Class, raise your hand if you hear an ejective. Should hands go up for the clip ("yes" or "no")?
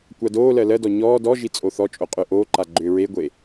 yes